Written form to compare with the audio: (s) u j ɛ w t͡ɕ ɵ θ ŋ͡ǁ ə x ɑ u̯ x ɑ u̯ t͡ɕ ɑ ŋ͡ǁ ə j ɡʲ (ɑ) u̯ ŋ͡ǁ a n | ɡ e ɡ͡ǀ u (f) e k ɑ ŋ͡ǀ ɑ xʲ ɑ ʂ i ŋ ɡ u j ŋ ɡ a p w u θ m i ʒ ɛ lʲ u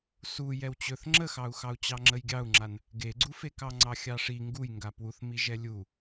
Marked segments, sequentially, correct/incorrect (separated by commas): correct, correct, correct